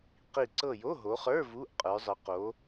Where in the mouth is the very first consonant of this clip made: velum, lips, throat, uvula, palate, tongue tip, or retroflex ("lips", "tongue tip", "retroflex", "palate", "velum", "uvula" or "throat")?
uvula